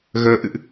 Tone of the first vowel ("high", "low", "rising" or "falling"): rising